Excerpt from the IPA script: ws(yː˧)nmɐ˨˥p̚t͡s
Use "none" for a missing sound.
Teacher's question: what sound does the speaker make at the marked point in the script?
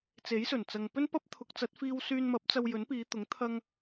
yː˧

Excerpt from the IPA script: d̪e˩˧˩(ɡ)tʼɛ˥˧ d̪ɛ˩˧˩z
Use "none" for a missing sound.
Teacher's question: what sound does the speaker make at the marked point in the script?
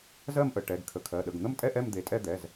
none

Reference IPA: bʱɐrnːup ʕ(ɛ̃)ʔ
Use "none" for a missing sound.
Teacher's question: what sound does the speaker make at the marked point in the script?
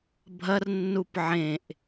ẽ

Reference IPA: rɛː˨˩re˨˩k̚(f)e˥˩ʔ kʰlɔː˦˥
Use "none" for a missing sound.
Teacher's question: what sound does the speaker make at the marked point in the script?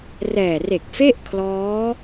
f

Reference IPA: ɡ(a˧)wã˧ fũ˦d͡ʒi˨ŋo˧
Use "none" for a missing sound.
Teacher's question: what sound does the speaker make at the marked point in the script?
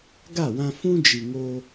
a˦˨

